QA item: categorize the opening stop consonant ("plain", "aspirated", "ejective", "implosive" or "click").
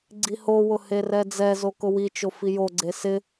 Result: click